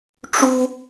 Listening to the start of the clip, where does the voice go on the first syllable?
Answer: high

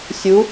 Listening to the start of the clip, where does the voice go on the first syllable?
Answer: rising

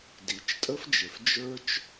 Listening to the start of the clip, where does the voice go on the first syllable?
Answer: low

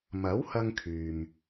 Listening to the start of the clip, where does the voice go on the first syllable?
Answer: rising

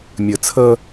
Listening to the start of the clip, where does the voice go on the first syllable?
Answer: low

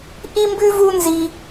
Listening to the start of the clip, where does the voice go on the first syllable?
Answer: high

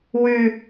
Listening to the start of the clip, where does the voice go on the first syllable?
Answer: low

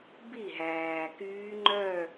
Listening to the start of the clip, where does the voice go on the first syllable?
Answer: falling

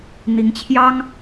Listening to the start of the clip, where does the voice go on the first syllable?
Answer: rising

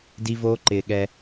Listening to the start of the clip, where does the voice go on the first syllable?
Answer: high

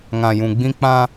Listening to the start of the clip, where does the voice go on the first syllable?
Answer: low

